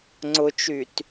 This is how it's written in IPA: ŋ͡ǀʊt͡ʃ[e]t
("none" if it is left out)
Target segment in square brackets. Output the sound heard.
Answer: y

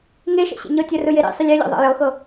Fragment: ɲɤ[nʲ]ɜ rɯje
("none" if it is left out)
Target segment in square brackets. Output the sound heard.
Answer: tʲ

